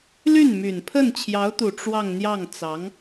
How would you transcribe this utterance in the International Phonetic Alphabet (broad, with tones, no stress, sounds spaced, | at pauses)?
l y˥˩ n m y˨˩ n pʰ ə˥˩ n t͡ɕʰ j ɑ˧˥ ʊ̯ t̪ u˨˩ ʈ͡ʂ w ɑ˥˧ ŋ n̪ j ɑ˥˩ ŋ t͡s ɑ˧˥ ŋ